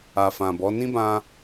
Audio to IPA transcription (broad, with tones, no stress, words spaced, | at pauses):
a˨fã˨bɔ˨˦ nĩ˦bã˧